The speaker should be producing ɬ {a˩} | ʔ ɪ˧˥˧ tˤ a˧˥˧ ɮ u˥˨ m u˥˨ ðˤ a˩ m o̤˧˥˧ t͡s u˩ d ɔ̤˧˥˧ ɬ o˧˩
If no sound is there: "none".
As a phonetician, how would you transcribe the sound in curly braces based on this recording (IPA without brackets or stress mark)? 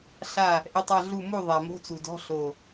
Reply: a˧˩